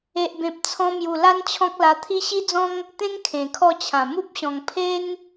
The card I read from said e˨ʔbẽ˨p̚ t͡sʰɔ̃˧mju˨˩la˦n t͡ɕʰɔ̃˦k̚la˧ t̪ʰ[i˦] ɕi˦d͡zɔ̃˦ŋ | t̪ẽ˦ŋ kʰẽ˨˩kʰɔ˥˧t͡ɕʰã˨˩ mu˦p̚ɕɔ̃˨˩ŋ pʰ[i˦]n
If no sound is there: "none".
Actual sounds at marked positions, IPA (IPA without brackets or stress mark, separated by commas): i˦, e˦